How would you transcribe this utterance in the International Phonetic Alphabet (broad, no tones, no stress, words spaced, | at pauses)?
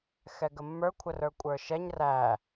xɛɡəmːə˞ kʷʰərə˞kʷʼə˞ʃɛɲ ræ